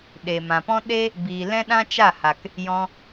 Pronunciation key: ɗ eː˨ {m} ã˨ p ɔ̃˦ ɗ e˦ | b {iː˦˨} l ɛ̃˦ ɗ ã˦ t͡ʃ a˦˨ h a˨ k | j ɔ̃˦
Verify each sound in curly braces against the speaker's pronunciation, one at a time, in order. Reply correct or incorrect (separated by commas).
correct, incorrect